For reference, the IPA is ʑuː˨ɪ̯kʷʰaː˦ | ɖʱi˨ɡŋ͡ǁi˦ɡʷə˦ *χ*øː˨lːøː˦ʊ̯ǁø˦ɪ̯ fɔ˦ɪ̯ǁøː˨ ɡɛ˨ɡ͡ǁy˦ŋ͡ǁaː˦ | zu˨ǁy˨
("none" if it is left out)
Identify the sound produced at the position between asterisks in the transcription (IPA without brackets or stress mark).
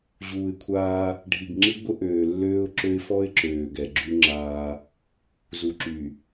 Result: ʔ